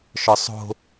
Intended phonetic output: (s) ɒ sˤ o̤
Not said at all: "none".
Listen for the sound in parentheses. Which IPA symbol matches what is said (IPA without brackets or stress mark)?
ʃ